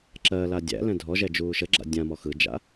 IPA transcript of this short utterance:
ǁ ɜ l a dʲ æ̰ l ɛ̃ dʱ ɔ ʒ ɛ d͡ʒ uː ʃ ə ɡ͡ǁ a̰ dʲ ã m ɔ x ɯ d͡ʒ a̰

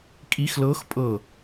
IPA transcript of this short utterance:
kʼ i x l ɤ x pʼ ɤ

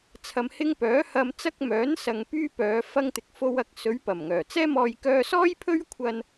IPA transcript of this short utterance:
t͡sʰ ɐ˧ m h ɪ˥ ŋ p œː˨˥ h ɐ˧ m t͡s ɐ˥ k̚ m œː˨˥ n s ɐ˨ ŋ p yː˥ p œː˨˧ f ɐ˧ ŋ t̪ ɪ˨ k̚ f o˧ w ɐ˧ k̚ s ɵ˨˧ ɥ p ɐ˨˩ m ŋ œː˨˩ t͡s ɛː˥ m ɔː˧ j k œː˧ s ɔː˥ j pʰ ɵ˥ ɥ kʷʰ ɐ˧ n

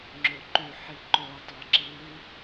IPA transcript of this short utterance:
ŋ͡ǁ ø ǃ y ħ i ǃ o tˤ ɜ ǁ i

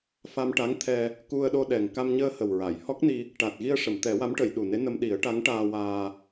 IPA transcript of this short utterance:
f a˧ m ʈ a˧˥ ŋ t̪ʰ ɛ˧ | k u˧ ə̯ ɗ o˧ ɗ ɛ˨˩ ŋ k a˧ m ɲ əː˧ h ə˨˩ w ɹ a˨˩˨ j h ɔ˦˥ k̚ n i˧ | ʈ a˨˩ t̚ ɣ i˧ ə̯ ʂ ə˨˩˨ m t̪ ɛ˨˩˦ w a˧˥ m ʈ ə˨˩˨ j ɗ u˨˩ n e˧˥ n ə˧ m ɗ i˨˩˦ ə̯ ʈ a˧˥ ŋ ʈ aː˧ w aː˧

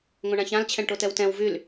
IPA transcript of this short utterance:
ŋ õ ɳ ã ç ã l t͡ɕʰ ɛ̃ ɳ ʈ o t ɛ w t ɛ̃ w v y l

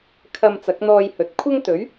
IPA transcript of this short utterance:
kʰ ɐ˧ m t͡s ɐ˨˥ k̚ n̪ ɔː˧ j h ɵ˨ t̚ kʷʰ ɐ˥ ŋ t̪ ɵ˨˥ ɥ

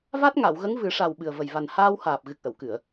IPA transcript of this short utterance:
v a˦˥ t̚ ŋ a˨˩˨ w ɣ ə˧˥ ŋ v ɨ˨˩˦ ʂ a˨˩ w ɓ ɨ˨˩ ə̯ v ə˨˩ j v a˨˩ n h aː˧ w h aː˨˩ p̚ ɣ ɨ˨˩ k̚ ʔ ə˨˩˨ w k ɨ˨˩˨ ə̯

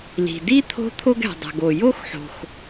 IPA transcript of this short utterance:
l i̤˩ d i˥ t̪ʰ o̤˦ t̪ʰ o˥ ɡ ɛ̤˩ dˤ ɛ̤˩ ɡ o˩ j o˥ x ħ o̤˩ x

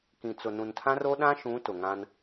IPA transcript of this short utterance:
k ĩ˨ t͡s ʊ˨ n ũ˨ n tʰ ã˦ r o˦ ɗ ã˦ ʃ ũ˨˦ t ʊ˨ ŋ ã˦ n

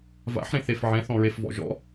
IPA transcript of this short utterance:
v a̰ ħ ɾ ẽ θ e f ʕ ɛ̃ θ ɔ̃ ɹ e f v ɔ̰ ʒ ɔ̰

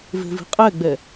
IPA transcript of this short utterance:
v e̤ v i̤ qʼ ɛ ɡ͡b ɛ

